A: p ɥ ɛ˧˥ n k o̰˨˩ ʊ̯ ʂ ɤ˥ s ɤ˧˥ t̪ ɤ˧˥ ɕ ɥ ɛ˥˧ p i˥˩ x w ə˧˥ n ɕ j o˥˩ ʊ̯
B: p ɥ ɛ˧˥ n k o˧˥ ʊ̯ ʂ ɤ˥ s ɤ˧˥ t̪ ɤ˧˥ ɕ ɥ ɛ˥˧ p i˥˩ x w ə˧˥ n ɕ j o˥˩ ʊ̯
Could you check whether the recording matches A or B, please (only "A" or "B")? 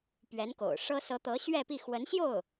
A